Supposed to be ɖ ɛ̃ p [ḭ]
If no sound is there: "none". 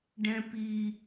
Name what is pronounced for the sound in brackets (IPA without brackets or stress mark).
i